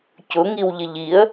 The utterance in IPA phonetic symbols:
cʊŋiwʎɪʎ iə̯

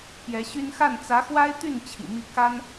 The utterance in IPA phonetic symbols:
pjɛ˧˥ɕy˥n xa˥˩n t͡sä˧˥xwa˥ɪ̯t̪y˥˩n t͡ɕʰḭ˨˩mi˥˩ ka˥n

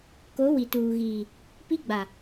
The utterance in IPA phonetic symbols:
ko˨˦ wi˨ tuː˨ɣiː˨ | pi˦ɡ͡ba˨

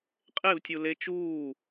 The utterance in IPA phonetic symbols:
qʼevtʲu le t͡ʃuː

